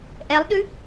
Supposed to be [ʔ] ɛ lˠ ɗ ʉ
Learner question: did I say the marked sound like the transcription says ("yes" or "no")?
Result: yes